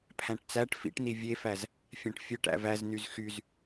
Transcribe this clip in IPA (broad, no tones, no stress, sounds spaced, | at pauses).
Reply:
pʰ æ̃ ʈ t͡s æ ʈ f ḭ ʈ n i vʲ e f æ z | fʲ æ̃ ʈ fʲ ø ʈ æ̰ v æ z n y z x y z